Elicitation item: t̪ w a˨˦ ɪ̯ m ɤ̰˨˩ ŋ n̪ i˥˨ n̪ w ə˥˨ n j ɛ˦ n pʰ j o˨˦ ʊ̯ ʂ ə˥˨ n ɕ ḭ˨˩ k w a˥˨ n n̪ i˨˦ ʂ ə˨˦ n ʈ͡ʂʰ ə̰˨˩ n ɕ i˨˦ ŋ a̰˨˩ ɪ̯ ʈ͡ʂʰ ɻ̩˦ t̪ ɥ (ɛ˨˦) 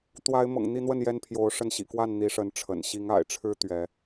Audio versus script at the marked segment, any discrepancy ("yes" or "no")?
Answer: no